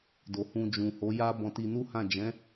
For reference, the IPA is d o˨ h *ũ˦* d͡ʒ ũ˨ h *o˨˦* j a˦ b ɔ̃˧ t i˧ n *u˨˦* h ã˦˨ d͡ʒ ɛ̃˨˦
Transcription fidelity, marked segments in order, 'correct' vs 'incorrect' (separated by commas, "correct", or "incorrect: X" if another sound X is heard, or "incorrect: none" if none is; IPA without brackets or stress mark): incorrect: ũ˧, correct, incorrect: u˦